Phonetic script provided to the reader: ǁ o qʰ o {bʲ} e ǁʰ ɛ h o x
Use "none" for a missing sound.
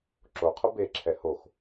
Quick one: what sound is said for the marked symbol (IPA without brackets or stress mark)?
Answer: b